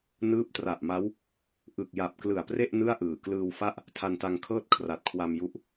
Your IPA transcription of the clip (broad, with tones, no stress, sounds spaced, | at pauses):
n ɯː˦˥ p̚ t r a˨˩ ʔ m a˦˥ w | ʔ ɯ˨˩ k̚ j a˨˩ p̚ k l ɯ˨˩ a̯ p r e˥˩ ʔ n ɯ˥˩ a̯ ʔ ɯː˨˩ k l ɯː˧ w f a˥˩ ʔ | tʰ a˧ n t a˧ ŋ kʰ ɤː˥˩ t̚ kʰ r a˨˩ t̚ kʰ w a˧ m j u˦˥ ʔ